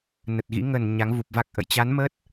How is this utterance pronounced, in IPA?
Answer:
nə˨˩t̚ɣḭ˧˥ ŋə˧˩n ɲa˨˦ŋvu˨˩p̚va˦˥k̚ʔə̰˧˨j t͡ɕa˨˦nmə˦˥t̚

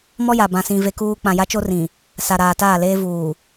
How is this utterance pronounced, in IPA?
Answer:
mɔ˦ja˨ bã˨sĩ˨ ve˦kuː˦ k͡pã˨ja˦t͡ʃo˦ rĩ˨ | sa˨ɾaː˨taː˦˨ leː˦vuː˨

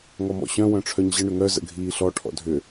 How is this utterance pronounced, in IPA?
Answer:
ŋɔmɔ̰ɕœ̃ wœ̃ʈ͡ʂʰœɲʑə ɳʏŋœ zə̰ɡʱiːɬɔ ʈʰɔ̰dʱʏ

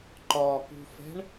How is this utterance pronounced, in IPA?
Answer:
ǃɒkṳfɛ̤ɳ

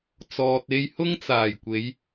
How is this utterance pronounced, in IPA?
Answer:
t͡sɔː˨t̚e˧jhʊ˥ŋ t͡saː˨˩jkʷe˨˧j

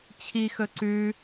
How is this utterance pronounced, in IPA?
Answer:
t͡ɕʰixɵ ǀʉ

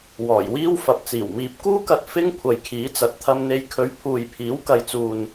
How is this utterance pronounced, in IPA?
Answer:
wɔː˨˩jwiː˥w fɐ˨˥p̚t͡siː˨˩w miː˨p̚kuː˥kɐ˧t̚ fɪ˥ŋ kʷʰɐ˨jkʰiː˨˥t͡sɐ˨˥t̚ t̪ʰɐ˧mn̪e˧j kʰɵ˨˧ɥ pʰuː˨jpʰiː˨˥w kɐ˨jt͡suː˨n

